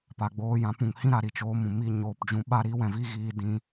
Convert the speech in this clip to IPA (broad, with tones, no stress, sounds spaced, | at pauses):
p a˨ ɡ͡b oː˧ j ã˨˦ p ũ˨ ŋ h ĩ˦ ɾ a˨ ɾ i˨ t͡ʃ oː˦ m ũ˨ m i˧ ɲ oː˨ p d͡ʒ ũ˧ ɓ a˦ ɾ i˦ w ɛ̃˨ v i˧ ɣ iː˧ d ĩ˧